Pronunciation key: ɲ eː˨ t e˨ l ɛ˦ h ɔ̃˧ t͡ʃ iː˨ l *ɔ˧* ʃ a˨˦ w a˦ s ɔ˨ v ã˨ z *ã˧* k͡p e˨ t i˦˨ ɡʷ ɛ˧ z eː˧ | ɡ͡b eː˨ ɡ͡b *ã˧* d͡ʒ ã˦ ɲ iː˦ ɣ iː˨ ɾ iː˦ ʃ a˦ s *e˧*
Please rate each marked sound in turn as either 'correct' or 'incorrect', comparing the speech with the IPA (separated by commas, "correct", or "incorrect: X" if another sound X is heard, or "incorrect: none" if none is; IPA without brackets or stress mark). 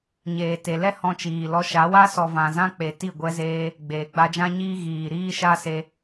correct, correct, incorrect: a˧, correct